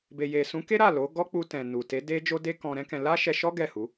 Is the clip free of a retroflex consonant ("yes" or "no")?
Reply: yes